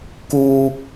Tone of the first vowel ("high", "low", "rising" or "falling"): low